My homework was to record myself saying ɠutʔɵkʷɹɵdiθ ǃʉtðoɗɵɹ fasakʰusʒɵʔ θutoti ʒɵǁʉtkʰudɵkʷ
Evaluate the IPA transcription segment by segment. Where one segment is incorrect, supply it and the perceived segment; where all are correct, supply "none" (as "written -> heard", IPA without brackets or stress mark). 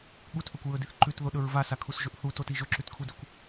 f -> v